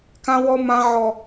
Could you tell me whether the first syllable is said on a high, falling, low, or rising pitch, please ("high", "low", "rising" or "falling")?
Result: high